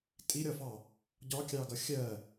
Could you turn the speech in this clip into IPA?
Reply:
tʼiɾʲɒfɑ | ɟɒkʲɑɡʌ xʲɜ

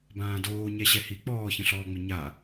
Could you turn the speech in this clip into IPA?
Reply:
bãːdoː ɲɛɕɛhi k͡pɔːçə̃ɬɔː ŋ͡mɪɲa

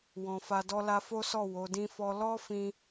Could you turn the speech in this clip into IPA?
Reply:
wɔ̃˨fa˧dɔ˦ la˧fo˦sɔ˦˨ wo˨˦dĩ˦fɔ˦ lɔ˦fĩ˧

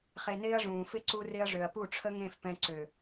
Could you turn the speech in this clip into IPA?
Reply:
χe˧nɪː˦ɐ̯ʐũː˨fɪ˦ ǀu˧rɪ˧ɐ̯ ʐø˨ɐ̯pu˦˨ʈ͡ʂʰə˦ŋẽ˦˨f pɛ̃˧ǀø˨

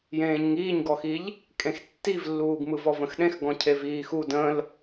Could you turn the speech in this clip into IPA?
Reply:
jẽːɲŋiːɲɡɔxiʎ | kʼẽxtːivlːuːɡ mɯvɔvə̃xɗẽx ɡɔ̃cʰeviːxu də̃l

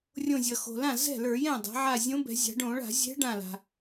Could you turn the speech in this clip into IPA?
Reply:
rʲõ˧˩zʲʌ˩xo̤˩lã˥˩ zɛ̤˥˩lə˞˧˩˧jɛ̃˥˩ dˤa̤˩˧ʕa˧˩ zʲõ˧˥bɛ̤˩˧zʲa̤˩˧ ɖõ˧˩˧ɭa̤˧˩˧zʲɛ̤˧˥ ɖã˧˩la̤˩

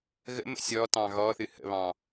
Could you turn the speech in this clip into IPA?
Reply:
ɣə̰mə̰ sʲɔtɑ̃ ɣɔθɨ hə̰βɑ̃

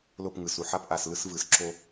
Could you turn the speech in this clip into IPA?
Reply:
lo˦˨pŋɯ˨su˨ ħa˦pʔa˨slɯ˦s vɯ˨sǁo˦

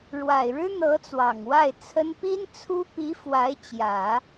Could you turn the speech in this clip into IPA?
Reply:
ɻwa˨˩ɪ̯ɻɻ̩˥n̪ɤ˧˥ t͡swɑ˨˩ŋwa˥˩ɪ̯t͡sʰə˥n pi˥nt͡sʰu˥ pi˧˥ fwa˧˥ɪ̯t͡ɕjä˨˩˦

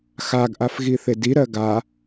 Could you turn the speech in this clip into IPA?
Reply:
xaɡʔaf ɣiθediɾɜ ɡa

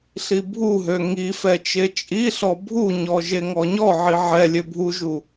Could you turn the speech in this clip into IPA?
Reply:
ɬibʱuɦø ŋifɛ t͡ʃet͡ʃʼiɬɔ bʱuɲɔ ʒeŋɔɲɔʕi ʕɛ lʲøbʱuʒu

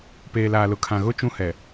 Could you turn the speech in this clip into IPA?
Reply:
peː˨laː˨lʊ˨kʰã˨ ɣʊ˦ t͡ʃũ˦hɛ˨

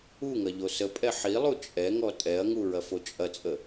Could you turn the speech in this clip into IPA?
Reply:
uŋɐ ʎosəpʼɛ ħilˠu t͡ʃʼɛŋɔ tʼɛɐ̯ŋu ɹɐfot͡ʃʼɐt͡sʼə

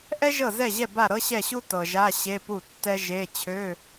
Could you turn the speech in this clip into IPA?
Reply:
ʔɛ˥ʒɤ˥˩zɛ˥˩ʑɛ˥˩ ba˥˩ɾɤ˥ɕɛ˥˩ɕu˥ tɤ˨ʒa˧˥˧ ɕe˧˥˧pu˥˩tːɛ˥ʒe˧˥˧ t͡ɕʰø˧˥˧

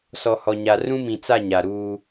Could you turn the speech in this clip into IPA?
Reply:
sɔ˨hɔ˨ɲa˨ rũ˦mĩ˨t͡sa˦˨ ɲa˨ɾuː˦

